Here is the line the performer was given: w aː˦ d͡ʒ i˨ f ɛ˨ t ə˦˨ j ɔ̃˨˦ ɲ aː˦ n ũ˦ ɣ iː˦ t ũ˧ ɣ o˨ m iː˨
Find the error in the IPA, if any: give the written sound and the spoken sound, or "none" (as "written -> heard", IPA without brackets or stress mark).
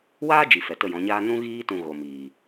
none